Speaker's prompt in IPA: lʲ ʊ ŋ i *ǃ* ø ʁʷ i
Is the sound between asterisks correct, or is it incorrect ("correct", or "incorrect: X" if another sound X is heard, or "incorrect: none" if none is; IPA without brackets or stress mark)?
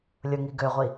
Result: incorrect: ɡ